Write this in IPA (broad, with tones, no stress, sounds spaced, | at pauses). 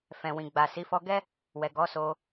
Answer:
f ɛ̃˨ w ĩ˨ ɡ͡b a˨ s i˨˦ f ɔ˧ ɡ ɛ˦ | w ɛ˨ ɡ ɔ˨˦ s o˧